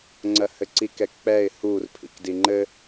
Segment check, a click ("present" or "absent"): present